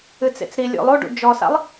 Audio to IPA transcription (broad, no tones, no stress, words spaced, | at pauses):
ɨt͡sḛt͡sɾi lʲo̰lˠoɖṵ d͡ʒɔsa̰lˠ